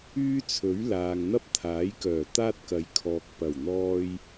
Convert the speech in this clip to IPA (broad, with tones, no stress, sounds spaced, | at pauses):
yː˥ t͡sʰ ɵ˨˥ ɥ l aː˨ ŋ n̪ ɐ˥ p̚ t̪ʰ aː˨˥ j k œː˨˩ t̪ aː˥ t̚ k ɐ˨˧ j kʰ ɔː˨ k̚ p ɐ˨˩ w n̪ ɔː˧ j